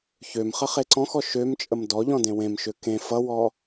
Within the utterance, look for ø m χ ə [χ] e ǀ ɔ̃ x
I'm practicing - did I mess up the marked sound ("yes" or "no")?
no